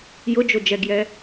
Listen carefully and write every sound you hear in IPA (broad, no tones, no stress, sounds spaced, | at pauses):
j ʊ d͡ʒ o d͡ʒ ɛ ɡ j ɛ